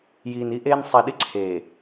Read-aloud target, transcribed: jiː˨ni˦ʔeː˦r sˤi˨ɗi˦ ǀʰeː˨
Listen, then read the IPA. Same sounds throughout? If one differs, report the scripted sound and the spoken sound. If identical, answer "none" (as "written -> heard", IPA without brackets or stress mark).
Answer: r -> n